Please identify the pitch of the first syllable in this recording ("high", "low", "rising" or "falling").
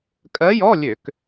rising